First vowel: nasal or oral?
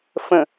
nasal